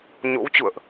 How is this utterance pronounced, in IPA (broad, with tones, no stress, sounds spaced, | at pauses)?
ɲ o̰˧˥ w t͡ɕ ṵ˧˨ ə̯ ʔ